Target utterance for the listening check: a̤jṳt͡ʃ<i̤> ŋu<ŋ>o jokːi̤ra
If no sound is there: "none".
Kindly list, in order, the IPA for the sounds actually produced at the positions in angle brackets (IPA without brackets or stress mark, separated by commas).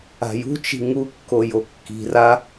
i̤, kː